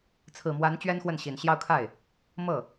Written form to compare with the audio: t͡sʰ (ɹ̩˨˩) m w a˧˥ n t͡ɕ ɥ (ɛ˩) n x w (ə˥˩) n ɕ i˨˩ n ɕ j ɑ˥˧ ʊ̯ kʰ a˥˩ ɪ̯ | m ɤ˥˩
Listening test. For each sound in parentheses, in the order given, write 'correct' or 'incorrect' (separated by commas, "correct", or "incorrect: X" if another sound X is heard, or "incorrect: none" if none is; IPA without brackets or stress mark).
correct, incorrect: ɛ˥, correct